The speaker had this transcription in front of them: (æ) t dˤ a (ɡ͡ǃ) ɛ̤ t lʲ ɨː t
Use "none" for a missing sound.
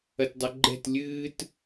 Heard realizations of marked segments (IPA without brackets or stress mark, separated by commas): ɐ, ɡ͡ǃ